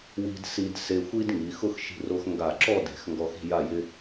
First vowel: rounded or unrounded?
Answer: unrounded